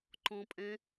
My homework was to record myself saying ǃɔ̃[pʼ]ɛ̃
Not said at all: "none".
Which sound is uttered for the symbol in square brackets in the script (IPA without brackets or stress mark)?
pʼ